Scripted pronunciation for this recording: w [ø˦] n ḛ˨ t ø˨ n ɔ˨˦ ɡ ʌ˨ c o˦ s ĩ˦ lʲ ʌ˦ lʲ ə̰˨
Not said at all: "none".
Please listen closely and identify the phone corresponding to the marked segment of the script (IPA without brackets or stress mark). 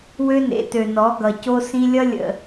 ø˦